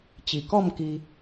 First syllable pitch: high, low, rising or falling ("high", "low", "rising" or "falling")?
low